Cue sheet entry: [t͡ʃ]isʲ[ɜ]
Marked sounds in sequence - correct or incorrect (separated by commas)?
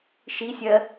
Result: incorrect, correct